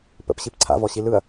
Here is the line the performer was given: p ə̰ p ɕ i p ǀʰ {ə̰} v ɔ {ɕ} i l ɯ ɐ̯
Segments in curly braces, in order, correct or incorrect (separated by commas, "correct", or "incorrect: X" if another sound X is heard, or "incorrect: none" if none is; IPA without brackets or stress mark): incorrect: a̰, correct